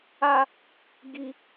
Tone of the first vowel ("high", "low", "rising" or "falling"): high